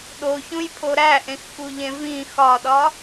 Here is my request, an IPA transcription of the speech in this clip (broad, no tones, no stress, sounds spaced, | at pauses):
ɗ o ç ũ j pʰ o ɾ æ ʔ ẽ x k u ʎ ẽ v ĩ x ɒ ɗ ɒ